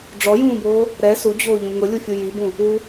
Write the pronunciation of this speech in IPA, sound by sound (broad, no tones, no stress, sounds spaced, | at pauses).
ɖ͡ʐ ɔ j ũː b oː | ɾ ɛ s u d͡ʑ oː ʎ ũ ŋ ʊ lʲ u fʲ u j i b ũ | u